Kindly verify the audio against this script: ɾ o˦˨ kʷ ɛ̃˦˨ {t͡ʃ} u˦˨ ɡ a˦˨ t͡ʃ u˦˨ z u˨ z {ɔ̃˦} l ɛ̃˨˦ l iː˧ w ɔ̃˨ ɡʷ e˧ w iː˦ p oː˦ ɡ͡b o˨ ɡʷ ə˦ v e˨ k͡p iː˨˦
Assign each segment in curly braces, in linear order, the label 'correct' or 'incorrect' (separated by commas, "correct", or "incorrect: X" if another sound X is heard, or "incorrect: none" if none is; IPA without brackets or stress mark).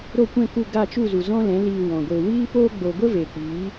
incorrect: k, correct